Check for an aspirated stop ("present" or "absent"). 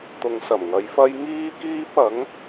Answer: absent